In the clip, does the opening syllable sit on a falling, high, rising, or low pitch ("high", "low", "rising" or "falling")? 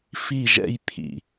falling